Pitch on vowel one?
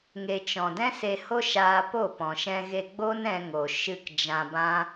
low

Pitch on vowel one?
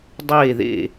falling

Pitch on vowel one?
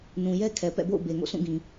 low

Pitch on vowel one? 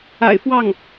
low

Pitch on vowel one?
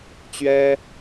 high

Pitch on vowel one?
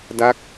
falling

